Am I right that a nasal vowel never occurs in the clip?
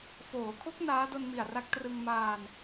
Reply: yes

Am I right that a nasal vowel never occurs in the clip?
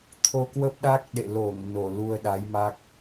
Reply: yes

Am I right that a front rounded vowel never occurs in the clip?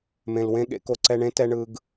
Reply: yes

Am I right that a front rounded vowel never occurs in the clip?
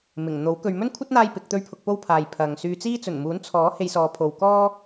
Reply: no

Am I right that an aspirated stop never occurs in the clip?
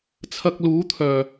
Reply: no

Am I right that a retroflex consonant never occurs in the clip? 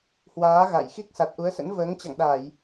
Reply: yes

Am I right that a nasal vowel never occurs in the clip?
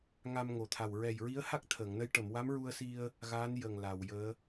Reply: yes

